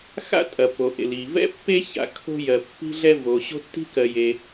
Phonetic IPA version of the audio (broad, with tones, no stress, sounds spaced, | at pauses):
x a̰˥ tʼ ɐ˩ p o˩ ʔ ḛ˩ l i˩ v ɛ̰˥ pː e˥ ç a̰˩ kʰ o̤˥ j ɜ˩ pː i̤˥ ɮ ɛ˥ v o˩ ɕ o̤˥ tː i̤˥ k ɜ˩ j e˩